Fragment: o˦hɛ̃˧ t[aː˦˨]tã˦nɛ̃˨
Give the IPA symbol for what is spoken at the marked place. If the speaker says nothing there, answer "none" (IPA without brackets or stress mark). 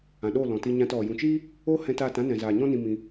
aː˦˨